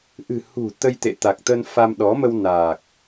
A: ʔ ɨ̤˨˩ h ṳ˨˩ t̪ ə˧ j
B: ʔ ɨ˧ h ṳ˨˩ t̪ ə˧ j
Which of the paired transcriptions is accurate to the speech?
A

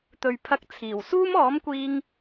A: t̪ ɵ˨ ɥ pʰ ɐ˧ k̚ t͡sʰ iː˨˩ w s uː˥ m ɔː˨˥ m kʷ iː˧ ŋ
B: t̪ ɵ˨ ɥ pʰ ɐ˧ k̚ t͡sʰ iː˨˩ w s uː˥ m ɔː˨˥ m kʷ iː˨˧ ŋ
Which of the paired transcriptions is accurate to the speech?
A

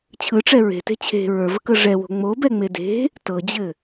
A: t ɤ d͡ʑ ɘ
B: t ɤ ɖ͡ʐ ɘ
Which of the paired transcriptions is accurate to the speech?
A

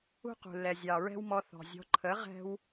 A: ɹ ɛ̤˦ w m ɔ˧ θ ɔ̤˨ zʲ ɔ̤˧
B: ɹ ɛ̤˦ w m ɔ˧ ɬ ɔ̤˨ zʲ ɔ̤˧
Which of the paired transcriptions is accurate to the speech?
A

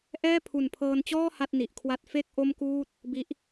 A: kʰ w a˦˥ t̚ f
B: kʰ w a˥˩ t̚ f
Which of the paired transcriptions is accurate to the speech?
B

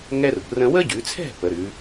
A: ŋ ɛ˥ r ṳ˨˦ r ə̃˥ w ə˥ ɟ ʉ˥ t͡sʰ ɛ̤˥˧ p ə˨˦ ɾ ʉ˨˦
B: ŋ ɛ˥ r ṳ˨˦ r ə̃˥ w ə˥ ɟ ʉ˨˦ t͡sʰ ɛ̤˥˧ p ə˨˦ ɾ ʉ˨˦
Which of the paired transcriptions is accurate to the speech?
B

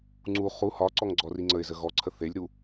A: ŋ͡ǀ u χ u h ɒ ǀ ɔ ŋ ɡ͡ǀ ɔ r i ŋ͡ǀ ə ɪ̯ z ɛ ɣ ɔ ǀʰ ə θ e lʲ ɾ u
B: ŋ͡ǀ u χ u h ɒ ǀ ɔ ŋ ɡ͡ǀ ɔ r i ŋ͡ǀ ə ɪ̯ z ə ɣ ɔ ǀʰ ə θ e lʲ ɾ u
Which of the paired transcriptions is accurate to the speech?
B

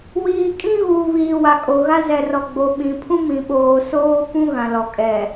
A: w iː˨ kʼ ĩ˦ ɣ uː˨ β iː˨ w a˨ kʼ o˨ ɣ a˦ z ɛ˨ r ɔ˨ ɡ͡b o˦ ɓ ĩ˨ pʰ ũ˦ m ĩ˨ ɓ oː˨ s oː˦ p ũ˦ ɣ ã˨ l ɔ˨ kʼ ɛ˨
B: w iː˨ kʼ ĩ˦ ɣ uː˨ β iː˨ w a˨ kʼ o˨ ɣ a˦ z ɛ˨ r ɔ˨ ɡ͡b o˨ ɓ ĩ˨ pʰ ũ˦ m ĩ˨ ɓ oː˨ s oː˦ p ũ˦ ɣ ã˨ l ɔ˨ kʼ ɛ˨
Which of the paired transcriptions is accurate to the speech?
B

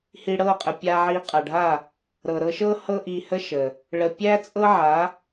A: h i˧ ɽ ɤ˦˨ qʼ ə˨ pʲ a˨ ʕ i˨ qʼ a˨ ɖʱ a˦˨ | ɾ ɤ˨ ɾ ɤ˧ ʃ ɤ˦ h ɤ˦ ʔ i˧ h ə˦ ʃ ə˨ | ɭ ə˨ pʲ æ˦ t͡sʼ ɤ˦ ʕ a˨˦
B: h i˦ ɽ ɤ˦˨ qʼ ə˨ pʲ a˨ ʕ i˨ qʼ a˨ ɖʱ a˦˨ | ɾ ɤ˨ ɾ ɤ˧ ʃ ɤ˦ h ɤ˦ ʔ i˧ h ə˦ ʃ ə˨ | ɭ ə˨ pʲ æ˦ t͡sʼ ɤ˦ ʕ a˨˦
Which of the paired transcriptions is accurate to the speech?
A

